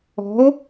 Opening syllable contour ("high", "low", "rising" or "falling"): rising